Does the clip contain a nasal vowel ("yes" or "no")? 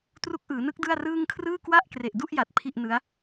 no